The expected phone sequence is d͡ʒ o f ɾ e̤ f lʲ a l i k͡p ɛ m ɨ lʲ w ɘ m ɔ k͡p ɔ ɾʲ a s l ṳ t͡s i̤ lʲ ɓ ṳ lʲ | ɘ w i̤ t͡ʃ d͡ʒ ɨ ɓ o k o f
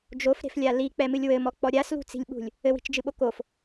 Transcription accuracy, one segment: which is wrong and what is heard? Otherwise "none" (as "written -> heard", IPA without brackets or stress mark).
none